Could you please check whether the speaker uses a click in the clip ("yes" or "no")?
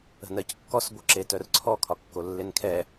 yes